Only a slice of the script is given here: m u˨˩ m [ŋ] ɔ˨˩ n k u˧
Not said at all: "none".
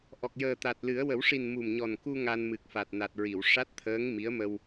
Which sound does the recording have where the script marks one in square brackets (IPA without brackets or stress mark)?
ɲ